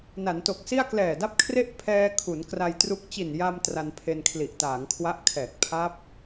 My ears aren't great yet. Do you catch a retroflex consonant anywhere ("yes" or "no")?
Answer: no